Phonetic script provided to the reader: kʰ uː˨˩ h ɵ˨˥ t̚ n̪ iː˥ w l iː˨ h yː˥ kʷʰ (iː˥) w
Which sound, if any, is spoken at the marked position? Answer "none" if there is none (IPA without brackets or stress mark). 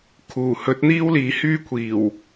iː˨˩